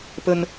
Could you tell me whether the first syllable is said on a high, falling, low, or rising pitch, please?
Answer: high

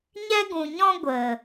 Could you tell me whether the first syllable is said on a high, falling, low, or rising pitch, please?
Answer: high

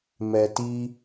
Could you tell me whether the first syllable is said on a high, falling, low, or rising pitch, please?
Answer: low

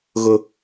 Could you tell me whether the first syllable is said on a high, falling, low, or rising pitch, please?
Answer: high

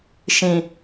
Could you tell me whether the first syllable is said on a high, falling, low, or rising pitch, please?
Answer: low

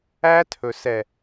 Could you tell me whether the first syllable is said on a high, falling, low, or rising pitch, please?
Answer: high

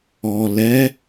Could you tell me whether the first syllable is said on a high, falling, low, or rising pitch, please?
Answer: low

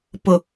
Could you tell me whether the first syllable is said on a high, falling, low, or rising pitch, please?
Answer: low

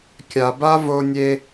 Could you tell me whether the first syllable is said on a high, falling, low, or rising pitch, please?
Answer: low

